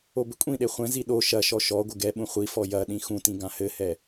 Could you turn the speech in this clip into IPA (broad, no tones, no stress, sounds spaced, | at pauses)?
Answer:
o b ɘ kʷʼ ĩ ɗ e χʷ ɛ̃ z i ɗ o ʃ ɐ ʃ ɔ ʃ ɔ ɡʷ ɘ ɡ ɛ ɓ ũ χʷ i f ɔ j ɐ ɗ ĩ x ũ t ĩ ɡ ã h ɘ h ɛ